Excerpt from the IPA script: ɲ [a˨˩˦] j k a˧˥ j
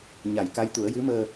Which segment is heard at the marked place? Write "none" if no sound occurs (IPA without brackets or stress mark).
a˨˩˦